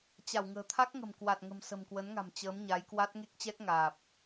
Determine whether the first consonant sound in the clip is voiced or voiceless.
voiceless